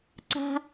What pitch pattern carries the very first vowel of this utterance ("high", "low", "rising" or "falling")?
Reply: high